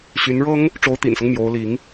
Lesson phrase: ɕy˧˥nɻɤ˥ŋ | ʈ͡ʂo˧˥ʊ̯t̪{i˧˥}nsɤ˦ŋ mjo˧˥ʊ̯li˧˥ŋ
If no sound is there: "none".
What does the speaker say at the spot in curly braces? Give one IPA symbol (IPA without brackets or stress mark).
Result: ḭ˨˩